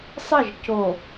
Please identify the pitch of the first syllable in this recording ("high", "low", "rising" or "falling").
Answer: falling